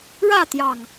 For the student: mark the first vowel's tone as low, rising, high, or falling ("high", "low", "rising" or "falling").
falling